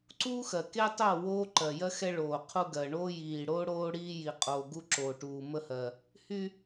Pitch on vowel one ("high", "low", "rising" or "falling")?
high